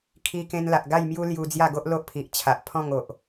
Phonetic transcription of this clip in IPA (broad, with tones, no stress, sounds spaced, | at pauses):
kʰ i˧ k ẽ˧ n l a˨ ʔ ɡ a˥˧ j m j u˦ l j u˧ d͡z j a˥˧ ɡ o˦ ʔ l o˦ ʔ pʰ i˨ ʔ t͡ɕʰ a˨ ʔ pʰ ɔ̃˥˧ ŋ o˨ ʔ